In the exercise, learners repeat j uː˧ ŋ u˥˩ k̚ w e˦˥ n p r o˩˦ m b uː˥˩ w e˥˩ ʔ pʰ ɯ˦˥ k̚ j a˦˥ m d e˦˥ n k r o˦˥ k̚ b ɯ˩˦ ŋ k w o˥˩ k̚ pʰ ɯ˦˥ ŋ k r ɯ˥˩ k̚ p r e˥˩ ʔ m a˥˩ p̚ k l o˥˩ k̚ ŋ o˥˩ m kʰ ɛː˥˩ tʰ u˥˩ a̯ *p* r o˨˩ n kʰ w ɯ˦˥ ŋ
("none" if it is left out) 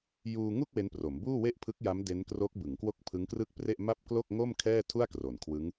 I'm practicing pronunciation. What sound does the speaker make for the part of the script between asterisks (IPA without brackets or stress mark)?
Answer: k